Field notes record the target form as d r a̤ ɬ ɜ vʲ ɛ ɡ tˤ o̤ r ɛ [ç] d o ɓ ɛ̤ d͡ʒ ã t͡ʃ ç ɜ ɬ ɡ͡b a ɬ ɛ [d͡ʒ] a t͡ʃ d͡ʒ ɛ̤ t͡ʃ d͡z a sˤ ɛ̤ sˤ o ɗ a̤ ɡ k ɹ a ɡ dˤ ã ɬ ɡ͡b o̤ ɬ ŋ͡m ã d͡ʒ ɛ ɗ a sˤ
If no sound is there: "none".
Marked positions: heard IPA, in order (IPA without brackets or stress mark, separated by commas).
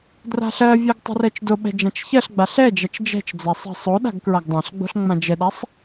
t͡ʃ, d͡ʒ